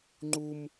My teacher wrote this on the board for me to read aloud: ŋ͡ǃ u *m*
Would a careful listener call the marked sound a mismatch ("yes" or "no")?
no